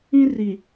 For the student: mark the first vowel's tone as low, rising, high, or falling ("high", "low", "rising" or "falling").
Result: high